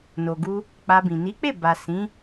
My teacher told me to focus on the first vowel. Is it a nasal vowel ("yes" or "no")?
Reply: no